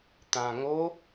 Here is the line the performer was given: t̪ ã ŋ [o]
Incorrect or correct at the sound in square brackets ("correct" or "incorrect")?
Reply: correct